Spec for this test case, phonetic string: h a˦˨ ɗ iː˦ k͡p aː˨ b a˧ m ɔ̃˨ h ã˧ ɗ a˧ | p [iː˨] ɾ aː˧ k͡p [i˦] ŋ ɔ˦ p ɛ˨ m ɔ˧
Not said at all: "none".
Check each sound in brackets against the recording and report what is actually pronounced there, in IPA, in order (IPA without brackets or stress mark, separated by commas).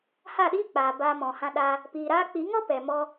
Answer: iː˨, i˨˦